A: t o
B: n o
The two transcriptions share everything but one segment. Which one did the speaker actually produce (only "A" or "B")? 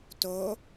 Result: A